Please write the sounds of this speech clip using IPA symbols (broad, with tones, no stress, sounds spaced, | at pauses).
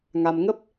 ŋ a˧ m ŋ ə˦˥ p̚